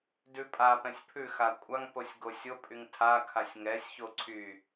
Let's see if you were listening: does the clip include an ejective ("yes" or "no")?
yes